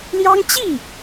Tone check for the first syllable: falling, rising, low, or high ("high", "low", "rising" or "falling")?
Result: high